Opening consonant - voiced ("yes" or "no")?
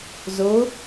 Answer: yes